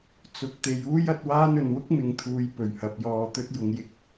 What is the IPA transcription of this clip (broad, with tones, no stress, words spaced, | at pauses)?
t͡sʊ˨˥k̚t̪e˨˧j uː˥jɐ˨˥t̚waː˥nɵ˨n wʊ˥k̚mɪ˨ŋt̪ʰuː˨j pɵ˨˩ɥhɐ˨p̚jɔː˧t̪ɵ˥t̚ jʊ˧ŋjɪ˥k̚